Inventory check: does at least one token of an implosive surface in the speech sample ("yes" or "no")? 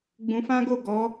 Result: no